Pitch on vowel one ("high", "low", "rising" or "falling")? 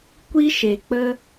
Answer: high